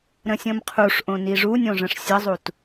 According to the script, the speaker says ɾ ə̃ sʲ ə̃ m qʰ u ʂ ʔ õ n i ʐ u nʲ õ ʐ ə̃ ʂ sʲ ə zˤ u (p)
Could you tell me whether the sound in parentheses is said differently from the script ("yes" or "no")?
yes